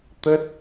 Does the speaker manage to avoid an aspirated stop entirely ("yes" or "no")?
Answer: yes